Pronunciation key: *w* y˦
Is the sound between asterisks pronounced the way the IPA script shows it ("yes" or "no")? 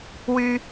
yes